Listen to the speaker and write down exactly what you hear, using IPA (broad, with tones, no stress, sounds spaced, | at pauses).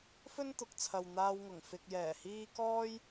f ɵ˥ n t̪ ʊ˨ k̚ t͡sʰ ɐ˨ w n̪ aː˧ w ŋ ʊ˨˩ ŋ f ɪ˨ k̚ j ɛː˨˩ h iː˧ k ɔː˥ j